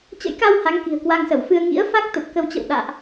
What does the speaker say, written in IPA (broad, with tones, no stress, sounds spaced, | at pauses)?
t͡ɕ ə̰˧˥ j k a˧ w h a˨˦ ŋ k i̤˨˩ ə̯ k w a˧ ŋ s ə˧˩ w f ɨ˧ ə̯ ŋ ḭ˧˥ ə̯ f a˦˥ k̚ t̪ ə˨˩ p̚ k ə˧ w t͡ɕ ə̰˧˨ w ɗ a̰ː˧˨ ʔ